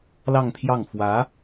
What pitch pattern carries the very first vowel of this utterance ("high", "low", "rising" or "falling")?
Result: falling